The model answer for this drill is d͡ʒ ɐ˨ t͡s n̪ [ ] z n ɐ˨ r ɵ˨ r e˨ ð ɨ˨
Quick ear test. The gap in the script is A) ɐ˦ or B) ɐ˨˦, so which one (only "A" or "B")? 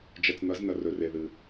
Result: B